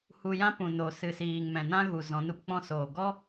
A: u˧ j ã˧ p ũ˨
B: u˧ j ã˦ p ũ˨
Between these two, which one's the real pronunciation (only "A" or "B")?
B